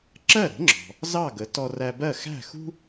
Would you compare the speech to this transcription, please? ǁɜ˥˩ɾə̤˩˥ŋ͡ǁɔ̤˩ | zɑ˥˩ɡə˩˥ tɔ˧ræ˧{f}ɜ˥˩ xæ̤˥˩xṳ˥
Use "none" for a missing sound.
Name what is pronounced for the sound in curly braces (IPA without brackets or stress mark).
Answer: b